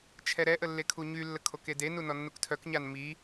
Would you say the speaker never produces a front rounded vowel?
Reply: no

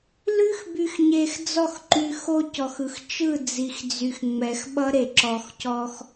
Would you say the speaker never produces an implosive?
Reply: no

